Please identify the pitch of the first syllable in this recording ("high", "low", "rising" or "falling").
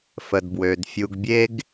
low